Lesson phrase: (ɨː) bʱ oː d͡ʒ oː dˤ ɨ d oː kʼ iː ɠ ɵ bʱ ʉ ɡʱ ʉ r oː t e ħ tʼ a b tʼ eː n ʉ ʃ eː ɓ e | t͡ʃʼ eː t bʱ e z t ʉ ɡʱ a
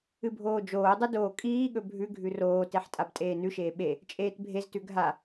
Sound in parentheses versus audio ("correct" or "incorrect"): incorrect